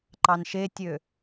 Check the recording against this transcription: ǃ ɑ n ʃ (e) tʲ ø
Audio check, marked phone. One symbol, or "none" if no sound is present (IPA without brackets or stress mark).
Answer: e